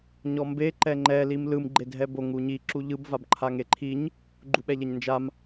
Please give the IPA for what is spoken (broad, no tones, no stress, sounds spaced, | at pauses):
ɲ ɔ m b e ǃ ɛ ŋ͡ǃ ɛ l i m l ɯ m ɡ͡ǃ e dʱ ɛ b o ŋ u ɲ i ǁ u ʎ ɯ b v a b ǃʰ a ŋ e ǃʰ i ɲ | ɡ͡ǃ u ɓ ɛ ʎ ɛ ɲ n d͡ʒ a m